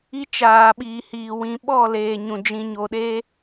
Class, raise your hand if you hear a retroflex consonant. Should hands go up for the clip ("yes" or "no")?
no